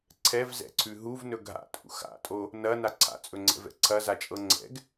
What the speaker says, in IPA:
ǀʰɛvzɛ̰ǀʰʉ ɦuvnɵ ɡʱa̰tʼṵ xa̰tʼo | nɐna ǀʰa̰t͡sʼɵŋ͡ǀɛ̰vɛ̰ ǀʰɐzat͡ʃʼɤ ŋ͡ǀɛ̰ɡ

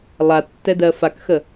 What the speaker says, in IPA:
lˠatːɛdɜ fakxə

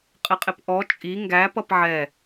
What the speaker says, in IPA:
qʼɪqʼɪpʔɔ t͡ʃʼi ŋɡæ pʌpʕɛ

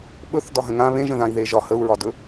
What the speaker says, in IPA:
ɓɵθ dɒɦə̃ŋã βẽʒə̃ðãi̯ ðeʒɒ həu̯ɹɒdɵ

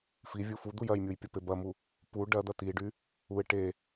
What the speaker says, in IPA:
fivʲu fud̪uj ɐjmʲuj pʲɐpebɐmu | pu ɖɐd̪ɐ t̪iɖy | uɪ̯ ʈe

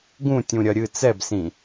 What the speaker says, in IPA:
ɡũtʲũ ɾʲɐɾʲɨ t͡sɛbsĩ

